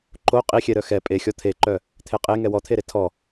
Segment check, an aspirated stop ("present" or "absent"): present